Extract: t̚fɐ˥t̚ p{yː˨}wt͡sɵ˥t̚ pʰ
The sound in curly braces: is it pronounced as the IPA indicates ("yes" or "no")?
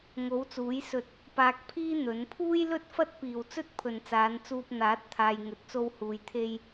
no